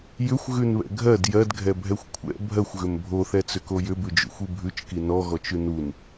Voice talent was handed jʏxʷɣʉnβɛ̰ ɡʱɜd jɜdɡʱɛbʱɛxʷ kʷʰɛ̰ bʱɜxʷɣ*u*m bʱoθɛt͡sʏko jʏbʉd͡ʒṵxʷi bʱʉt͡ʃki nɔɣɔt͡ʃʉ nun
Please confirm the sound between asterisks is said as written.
no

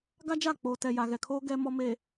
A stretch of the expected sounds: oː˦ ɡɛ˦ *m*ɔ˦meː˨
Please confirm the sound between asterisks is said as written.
yes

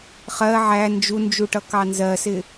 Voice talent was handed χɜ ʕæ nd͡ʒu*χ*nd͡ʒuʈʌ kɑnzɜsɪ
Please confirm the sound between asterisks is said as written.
no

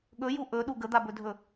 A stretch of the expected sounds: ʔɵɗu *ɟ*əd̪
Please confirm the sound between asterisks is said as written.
no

